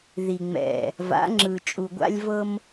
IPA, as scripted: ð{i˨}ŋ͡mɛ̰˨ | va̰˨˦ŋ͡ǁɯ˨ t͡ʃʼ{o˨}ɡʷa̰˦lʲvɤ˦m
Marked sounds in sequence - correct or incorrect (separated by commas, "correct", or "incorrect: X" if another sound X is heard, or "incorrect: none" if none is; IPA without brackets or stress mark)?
correct, incorrect: u˨